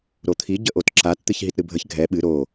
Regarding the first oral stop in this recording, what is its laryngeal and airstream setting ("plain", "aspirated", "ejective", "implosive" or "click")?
aspirated